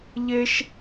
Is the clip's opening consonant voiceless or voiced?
voiced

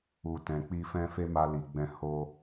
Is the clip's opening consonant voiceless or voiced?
voiceless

